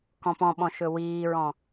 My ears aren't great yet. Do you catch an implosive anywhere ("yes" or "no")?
yes